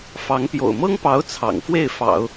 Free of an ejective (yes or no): yes